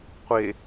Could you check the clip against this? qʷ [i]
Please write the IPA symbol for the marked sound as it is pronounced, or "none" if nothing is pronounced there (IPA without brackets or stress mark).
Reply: e